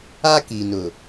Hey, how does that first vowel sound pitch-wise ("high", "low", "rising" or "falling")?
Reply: high